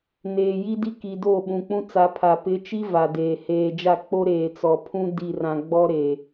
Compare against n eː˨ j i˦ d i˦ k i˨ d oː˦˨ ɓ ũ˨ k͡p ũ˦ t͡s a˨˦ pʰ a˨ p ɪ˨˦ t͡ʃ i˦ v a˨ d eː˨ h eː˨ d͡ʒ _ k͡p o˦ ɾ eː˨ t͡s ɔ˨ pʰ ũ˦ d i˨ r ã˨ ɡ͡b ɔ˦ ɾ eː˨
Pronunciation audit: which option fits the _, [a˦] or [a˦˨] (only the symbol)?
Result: a˦˨